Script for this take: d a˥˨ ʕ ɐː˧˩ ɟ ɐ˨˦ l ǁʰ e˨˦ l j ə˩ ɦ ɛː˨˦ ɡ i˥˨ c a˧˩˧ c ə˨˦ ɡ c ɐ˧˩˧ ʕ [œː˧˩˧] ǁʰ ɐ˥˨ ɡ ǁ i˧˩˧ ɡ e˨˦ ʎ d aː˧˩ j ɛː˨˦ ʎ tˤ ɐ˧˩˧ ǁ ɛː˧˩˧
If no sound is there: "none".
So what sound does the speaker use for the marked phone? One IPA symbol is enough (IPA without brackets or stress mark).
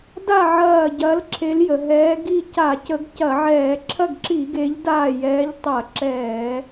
ɛː˧˩˧